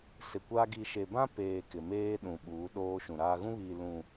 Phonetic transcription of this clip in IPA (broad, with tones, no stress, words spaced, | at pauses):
sɪ˨kʷa˦ ɡi˨ʃe˨bã˦peː˨ kɪ˨meː˦ɗũ˨ ɓuː˨˦ɗoː˦ ʃũ˨ɾaː˦ ɣũ˦βiː˨ lũ˨